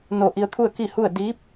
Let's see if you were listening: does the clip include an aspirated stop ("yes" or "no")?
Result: yes